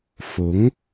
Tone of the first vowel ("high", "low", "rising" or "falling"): rising